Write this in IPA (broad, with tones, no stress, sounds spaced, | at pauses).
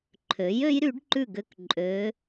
ǃʰ ø˩˥ j ø˧˥ j ɾ y˩˥ ɖ ǃ ʉ˥˨ ɡ ø˥˨ k ǃʼ ø˧˥